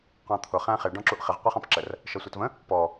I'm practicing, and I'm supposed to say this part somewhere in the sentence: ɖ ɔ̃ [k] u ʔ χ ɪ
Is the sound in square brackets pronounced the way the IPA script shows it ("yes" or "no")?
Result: no